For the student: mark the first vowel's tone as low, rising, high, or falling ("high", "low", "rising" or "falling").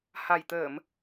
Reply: low